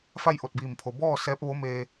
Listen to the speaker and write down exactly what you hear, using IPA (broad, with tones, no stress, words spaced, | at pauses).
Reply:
fa˥˨jʔo˧˩t̚biː˧˩mpʰo˩ bɔː˥˨ sɛː˧˥p̚ʋo˧˥ meː˧